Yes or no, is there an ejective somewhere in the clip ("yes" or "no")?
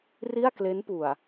no